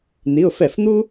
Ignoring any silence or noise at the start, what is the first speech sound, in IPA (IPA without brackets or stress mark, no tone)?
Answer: n̪